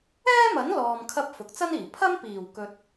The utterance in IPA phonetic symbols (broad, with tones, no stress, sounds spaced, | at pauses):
ɛː˥ m ɐ˨˥ n l ɔː˨ m kʰ ɐ˧ p̚ f ʊ˨ k̚ t͡s ɐ˥ n iː˨˩ pʰ ɐ˥ m p iː˨˩ w k ɵ˨ t̚